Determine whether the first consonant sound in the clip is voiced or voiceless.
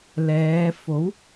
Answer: voiced